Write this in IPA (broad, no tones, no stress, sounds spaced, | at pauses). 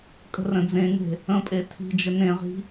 kʼ ə̤ r ə̃ d͡z ẽ ŋ e̤ | ə̃ pʼ e tʰ i̤ d͡ʒ ə n ẽ ʁ i̤